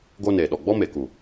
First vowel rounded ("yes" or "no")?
yes